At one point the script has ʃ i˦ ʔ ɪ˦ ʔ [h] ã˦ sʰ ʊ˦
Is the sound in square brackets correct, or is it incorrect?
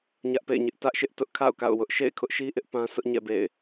incorrect